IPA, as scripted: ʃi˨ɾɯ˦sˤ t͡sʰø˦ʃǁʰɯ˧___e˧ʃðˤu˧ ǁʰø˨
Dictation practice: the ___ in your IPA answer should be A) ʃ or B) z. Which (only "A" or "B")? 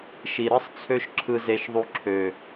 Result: B